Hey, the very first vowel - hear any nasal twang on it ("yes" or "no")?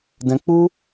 yes